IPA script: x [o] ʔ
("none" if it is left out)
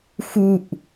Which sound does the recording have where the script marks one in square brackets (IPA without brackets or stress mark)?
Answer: u